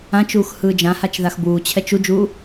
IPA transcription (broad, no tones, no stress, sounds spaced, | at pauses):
ã t͡ʃ uː x h ɯː d͡ʒ ã h a t͡ʃ ð a x b uː t͡ɕʰ ɛ t͡ʃ u d͡ʒ uː